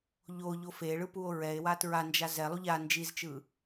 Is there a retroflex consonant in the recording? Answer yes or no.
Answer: yes